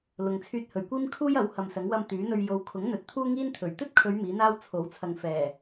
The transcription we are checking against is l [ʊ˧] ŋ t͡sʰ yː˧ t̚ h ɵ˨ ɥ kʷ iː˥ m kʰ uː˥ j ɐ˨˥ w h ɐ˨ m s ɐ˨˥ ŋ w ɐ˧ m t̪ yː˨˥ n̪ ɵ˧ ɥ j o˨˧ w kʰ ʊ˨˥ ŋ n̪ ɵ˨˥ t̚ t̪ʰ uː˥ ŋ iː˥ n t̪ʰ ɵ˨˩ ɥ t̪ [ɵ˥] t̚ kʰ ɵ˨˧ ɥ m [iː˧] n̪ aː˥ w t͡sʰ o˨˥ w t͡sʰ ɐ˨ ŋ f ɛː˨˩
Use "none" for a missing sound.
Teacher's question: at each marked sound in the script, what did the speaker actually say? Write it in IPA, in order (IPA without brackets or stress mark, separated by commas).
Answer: ʊ˧, ɵ˥, iː˨˥